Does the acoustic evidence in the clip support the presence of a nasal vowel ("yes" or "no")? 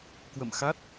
no